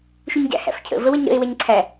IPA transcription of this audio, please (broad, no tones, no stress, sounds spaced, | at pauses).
ʃ u ɲ ɟ æ̰ h æ̰ f cʰ ə̰ v ə w ə ɲ ɾ ə̰ e̯ w ɛ ɲ ǀʰ æ